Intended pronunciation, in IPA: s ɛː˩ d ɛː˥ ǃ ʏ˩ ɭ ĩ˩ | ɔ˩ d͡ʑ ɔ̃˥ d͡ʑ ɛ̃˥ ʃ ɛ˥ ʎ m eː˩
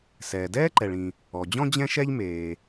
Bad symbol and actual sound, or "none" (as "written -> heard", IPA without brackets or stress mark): ʏ˩ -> ɛ˩